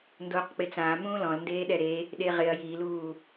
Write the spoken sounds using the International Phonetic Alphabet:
ndoːqk͡pɪt͡sãː mũːlɔ̃lndeːɗɛ ɾe | ɗeʁɪɐ̯ jiluː

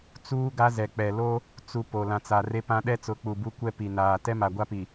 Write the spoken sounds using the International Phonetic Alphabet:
t͡suː˦ɡa˦ zɛ˨k͡pɛ˨lo˦ | t͡su˨ po˨lã˨t͡sa˨ re˦pã˦ ɗɛ˦t͡sʊ˨˦ k͡pu˨bu˦kʷɛ˦ pi˨naː˨ tɛ˦ma˨ɡʷa˦pi˨

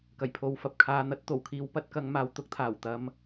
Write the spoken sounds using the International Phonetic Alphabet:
kɐ˨˩jpʰo˨˧wfɐ˨p̚ kʰaː˨n̪ɐ˨˥t̚t̪o˨˩wkʰiː˨˧w pɐ˨˥t̚kɐ˨˧ŋmaː˨w t̪ʊ˥k̚t̪ʰaː˨˩wt̪ɐ˧m

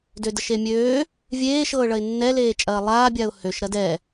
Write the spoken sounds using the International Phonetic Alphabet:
dødəʃemʲøː | vʲeːʃɤːɭɐɪ̯ nːɛleːt͡ʃʼɐː lˠaːbʲaʊ̯ høʃɾɐ dɛ

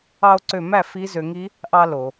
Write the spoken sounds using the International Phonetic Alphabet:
ɑ˧o̯ǀø˧˩mæ˥˩ fi˦˥zø˧ŋi˦˥ | ʔɑ˧lo˩

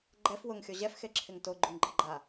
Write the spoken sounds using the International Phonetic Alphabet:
ɡ͡ǃɛf wʊŋxʲo ʑɛfxeǁʰɪŋ toɡ͡ǃuŋɡ͡ǃɪɡ͡ǃa

